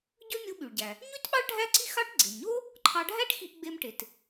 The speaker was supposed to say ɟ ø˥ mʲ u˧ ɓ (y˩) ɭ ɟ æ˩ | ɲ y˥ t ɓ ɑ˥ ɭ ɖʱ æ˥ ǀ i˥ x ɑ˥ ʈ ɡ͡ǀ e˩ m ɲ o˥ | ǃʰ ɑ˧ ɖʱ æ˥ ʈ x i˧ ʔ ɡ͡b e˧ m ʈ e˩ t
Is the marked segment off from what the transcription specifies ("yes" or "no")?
no